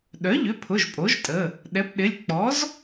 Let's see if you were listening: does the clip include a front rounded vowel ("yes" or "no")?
yes